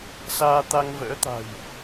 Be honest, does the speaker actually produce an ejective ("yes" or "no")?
no